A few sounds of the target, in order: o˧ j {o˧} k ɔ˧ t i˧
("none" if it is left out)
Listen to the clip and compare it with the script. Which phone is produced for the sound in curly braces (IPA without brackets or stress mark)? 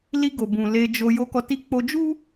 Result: o˧